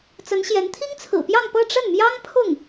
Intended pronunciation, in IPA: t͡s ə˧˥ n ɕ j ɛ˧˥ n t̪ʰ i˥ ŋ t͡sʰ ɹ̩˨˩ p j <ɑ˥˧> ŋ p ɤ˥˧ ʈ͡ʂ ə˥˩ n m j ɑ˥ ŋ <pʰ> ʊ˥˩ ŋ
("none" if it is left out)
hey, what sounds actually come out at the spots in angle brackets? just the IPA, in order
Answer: ɑ˥˧, pʰ

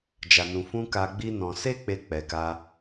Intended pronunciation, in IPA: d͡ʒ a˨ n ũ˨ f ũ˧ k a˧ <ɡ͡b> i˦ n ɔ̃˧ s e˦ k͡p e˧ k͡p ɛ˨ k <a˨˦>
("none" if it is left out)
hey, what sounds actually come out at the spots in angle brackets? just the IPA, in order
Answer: ɡ͡b, a˧

